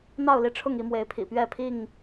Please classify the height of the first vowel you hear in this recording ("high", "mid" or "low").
low